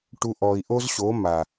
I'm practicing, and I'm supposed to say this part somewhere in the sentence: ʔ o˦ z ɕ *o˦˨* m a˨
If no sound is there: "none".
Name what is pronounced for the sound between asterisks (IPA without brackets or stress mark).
o˨˦